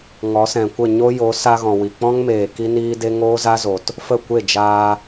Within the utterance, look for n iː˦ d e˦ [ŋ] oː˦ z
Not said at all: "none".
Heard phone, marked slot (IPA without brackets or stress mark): ŋ